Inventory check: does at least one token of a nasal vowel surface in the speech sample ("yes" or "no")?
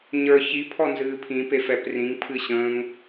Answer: yes